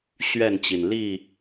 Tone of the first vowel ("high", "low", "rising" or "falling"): falling